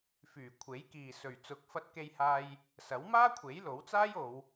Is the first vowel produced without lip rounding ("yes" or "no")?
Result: no